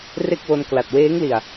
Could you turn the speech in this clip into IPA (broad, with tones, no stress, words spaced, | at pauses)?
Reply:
re˥˩k̚wo˧n kla˨˩t̚weː˦˥ŋli˨˩a̯